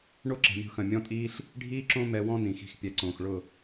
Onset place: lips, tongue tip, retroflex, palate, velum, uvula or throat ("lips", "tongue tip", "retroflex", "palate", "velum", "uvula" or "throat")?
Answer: retroflex